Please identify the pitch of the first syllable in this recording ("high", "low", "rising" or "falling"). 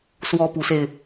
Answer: high